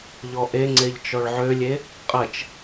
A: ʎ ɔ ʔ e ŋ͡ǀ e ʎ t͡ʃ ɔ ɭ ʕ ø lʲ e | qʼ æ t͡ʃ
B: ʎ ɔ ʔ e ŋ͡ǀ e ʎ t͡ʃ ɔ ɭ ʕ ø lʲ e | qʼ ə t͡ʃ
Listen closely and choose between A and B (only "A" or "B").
B